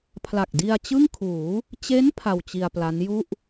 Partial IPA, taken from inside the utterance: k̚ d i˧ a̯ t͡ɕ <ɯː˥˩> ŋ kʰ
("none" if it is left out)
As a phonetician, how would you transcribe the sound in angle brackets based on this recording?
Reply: ɯ˥˩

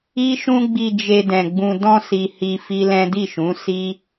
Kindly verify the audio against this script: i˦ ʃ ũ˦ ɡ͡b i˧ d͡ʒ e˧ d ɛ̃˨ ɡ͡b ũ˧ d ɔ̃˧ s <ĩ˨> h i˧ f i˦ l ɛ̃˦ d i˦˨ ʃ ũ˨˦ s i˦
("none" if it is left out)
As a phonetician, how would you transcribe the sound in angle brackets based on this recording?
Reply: i˨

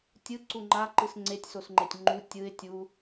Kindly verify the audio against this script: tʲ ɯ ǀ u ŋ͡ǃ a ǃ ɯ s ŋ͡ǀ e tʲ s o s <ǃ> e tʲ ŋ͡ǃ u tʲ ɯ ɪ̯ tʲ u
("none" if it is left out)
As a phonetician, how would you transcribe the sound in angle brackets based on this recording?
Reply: ŋ͡ǃ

